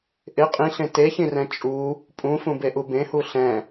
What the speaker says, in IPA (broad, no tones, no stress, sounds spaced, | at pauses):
ʔ ɪ qʼ ĩ ɬ ẽ t e ç ĩ r ɛ̃ t͡ʃʼ u | pʼ ũ f ũ b e ʔ u b ẽ h u ɬ ɛ̃